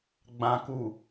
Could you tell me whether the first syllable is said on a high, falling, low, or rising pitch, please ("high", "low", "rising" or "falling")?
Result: low